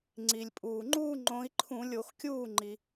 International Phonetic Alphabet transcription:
ŋ͡ǀi˩lʲpʼuː˩ ŋ͡ǃuː˥˧ŋ͡ǃõ˨˦i̯ǃʰũ˧˩˧ lʲo˧˩˧x kʲuː˥˩ ŋ͡ǃi˩

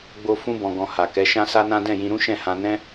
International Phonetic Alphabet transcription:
ɡ͡bo˧ fũ˧bɔ̃˨ɡɔ̃˨ ha˨kɛ˨˦ ʃã˦sa˦nã˦ dɛ̃˦˨jĩ˧ɾũ˦ʃɛ̃˦˨ hã˧nɛ̃˦

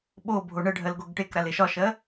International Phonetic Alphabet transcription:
ɓo bʱoɳəɖʱɜl ɡoɡʈekɾal eʃɒʃɜ

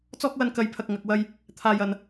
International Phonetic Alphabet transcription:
t͡sɔː˥k̚ wɐ˧nkɐ˨j pʰɐ˨k̚ŋɐ˨k̚wɐ˧j | t̪ʰaː˨jɐ˨n

